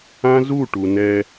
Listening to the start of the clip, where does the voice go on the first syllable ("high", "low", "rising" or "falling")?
high